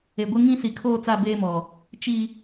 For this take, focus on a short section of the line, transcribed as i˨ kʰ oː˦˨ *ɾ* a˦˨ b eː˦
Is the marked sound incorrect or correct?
incorrect